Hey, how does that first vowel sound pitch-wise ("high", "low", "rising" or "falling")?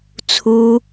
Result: high